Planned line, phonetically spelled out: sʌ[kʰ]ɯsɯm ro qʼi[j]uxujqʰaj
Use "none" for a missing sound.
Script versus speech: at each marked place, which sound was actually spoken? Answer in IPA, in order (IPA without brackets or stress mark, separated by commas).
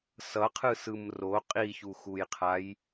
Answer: qʰ, ç